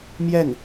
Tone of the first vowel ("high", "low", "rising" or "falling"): falling